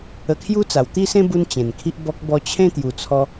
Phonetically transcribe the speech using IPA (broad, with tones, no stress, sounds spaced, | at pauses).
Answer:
ə˧ kʰ j u˦ t͡s a˨˩ w t̪ i˥˧ s ẽ˦ b u˧ n t͡ɕ ẽ˨˩ n kʰ i˦ ʔ b ɔ˦ k̚ b ɔ˧ t͡ɕʰ ẽ˥˧ t̪ j u˨˩ t͡sʰ ɔ˧